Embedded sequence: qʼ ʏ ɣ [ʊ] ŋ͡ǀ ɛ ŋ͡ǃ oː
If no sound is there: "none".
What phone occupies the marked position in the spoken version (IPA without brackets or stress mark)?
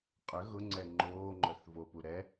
ʊ